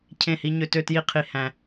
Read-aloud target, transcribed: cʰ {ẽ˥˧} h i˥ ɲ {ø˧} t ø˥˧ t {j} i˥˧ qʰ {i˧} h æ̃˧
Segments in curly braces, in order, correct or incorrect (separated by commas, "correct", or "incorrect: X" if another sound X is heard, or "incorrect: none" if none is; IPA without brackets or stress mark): correct, correct, correct, correct